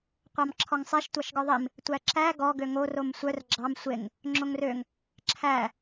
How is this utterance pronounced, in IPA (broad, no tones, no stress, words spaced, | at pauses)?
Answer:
qʷɑmǁʰɔŋsˤeʃ tʷɑʃɡɔðˤim | tʷæǁæ ɡɔ ɡøŋo romsʷœr ɡ͡ǁɑm sʷeŋ | ŋ͡ǁoŋrøŋ | ǁʰæ